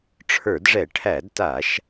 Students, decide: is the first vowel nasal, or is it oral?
oral